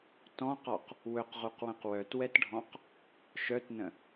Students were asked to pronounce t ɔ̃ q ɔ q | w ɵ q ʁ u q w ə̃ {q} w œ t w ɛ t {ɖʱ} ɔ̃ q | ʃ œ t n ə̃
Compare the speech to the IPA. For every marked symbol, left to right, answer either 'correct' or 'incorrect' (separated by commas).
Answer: correct, correct